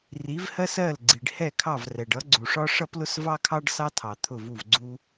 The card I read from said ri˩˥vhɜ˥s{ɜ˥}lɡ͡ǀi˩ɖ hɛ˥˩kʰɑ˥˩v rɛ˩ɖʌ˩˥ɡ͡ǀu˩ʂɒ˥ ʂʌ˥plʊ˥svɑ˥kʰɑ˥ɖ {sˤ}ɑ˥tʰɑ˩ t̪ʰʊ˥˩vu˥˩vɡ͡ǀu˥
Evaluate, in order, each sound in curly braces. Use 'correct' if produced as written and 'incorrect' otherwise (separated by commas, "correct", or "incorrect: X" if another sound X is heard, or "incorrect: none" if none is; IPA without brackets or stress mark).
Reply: incorrect: ɜ˥˩, incorrect: s